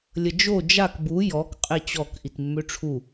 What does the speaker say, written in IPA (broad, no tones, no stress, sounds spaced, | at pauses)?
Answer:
lʲ ə d͡ʒ o d͡ʒ a k b u j ɔ k qʼ e t͡ɕ ɔ k ʔ i t mː ø ʈ͡ʂʰ u